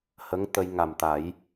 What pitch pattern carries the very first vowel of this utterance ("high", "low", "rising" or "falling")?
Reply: rising